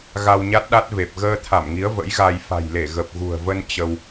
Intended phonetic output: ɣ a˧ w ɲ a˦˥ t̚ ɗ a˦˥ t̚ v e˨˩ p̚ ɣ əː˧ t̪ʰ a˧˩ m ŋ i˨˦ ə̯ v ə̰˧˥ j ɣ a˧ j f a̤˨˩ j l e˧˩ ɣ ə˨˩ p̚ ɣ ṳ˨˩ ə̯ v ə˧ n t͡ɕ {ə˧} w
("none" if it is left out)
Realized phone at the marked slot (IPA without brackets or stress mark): ə˧